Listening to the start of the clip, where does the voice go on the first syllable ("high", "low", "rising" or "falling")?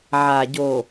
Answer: low